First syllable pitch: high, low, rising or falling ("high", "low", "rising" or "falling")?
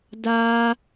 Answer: high